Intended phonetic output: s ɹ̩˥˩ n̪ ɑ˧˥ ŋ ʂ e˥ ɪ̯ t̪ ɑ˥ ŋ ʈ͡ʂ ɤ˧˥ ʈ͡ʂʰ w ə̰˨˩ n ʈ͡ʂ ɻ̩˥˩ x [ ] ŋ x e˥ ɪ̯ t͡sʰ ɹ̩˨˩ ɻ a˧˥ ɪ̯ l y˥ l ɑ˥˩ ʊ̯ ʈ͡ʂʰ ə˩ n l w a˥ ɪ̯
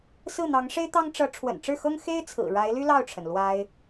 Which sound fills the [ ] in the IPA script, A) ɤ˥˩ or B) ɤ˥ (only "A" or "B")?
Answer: B